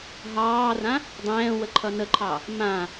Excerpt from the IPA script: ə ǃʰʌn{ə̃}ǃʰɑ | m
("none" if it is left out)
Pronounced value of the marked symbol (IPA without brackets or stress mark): ə